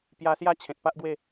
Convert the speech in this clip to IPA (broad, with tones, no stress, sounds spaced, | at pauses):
p j a˧ s j a˦ t͡ɕʰ ẽ˨ t̚ p a˦ ʔ ɡ w e˥˧